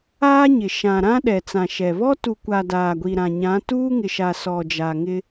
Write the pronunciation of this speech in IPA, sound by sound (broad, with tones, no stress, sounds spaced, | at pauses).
aː˦ ɲ ɪ˨ ʃ ã˨ ɾ ã˦ ɗ ɛ˨ t͡s ã˨ ʃ ɛ˨ β ɔ˦ t u˨ kʷ a˨ d aː˨ ɡʷ i˨ ɾ ã˨ ɲ ã˨˦ t uː˦ ŋ ɪ˨ ʃ a˨ s ɔ˨ d͡ʒ a˨ ŋ ɪ˦